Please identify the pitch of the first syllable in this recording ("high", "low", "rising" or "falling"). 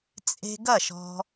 high